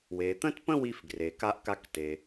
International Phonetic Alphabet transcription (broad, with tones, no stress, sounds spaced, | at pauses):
w e˩ t̪ ə̃˥ t p ə̃˥ w i˧ f ɡ r e˩ k a˧ ʔ k a˧ k t e˩